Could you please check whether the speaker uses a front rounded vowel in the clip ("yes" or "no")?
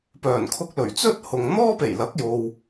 yes